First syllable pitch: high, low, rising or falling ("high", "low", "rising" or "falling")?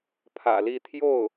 low